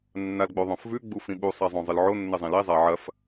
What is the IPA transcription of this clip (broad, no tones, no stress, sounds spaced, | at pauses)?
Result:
nː a l ɡ͡b o ðˤ õ f v ʉ ɡ͡b u f ĩ ɓ u sˤ a zˤ õ zˤ ɨ l ʕ o nː e zˤ ĩ l i zˤ a ʕ ɐ f